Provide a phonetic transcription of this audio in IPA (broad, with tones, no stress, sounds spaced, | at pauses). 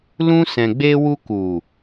l ũ˧ s ɛ̃˨ ɡ͡b e˧ w u˧ k u˨